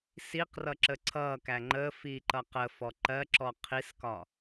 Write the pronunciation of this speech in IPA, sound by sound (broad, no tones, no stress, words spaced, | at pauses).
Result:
siqrʌ ǁəǀʰʌkæ ŋ͡ǃəfi ǃʌqəfɔ ǃɜǁɔ qʰiskɒ